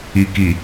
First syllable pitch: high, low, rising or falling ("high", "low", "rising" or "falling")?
low